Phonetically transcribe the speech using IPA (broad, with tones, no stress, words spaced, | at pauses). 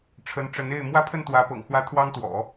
ʈ͡ʂʰə˧˥nʈ͡ʂə˧˥ne˥˩ɪ̯ mwä˥pʰə˥˩nt̪wä˧˥pɤ̰˨˩ŋ xwä˥t̪ʰwɑ˥ŋt̪wɔ̰˨˩˦